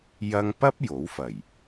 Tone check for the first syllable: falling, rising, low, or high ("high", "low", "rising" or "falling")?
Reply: high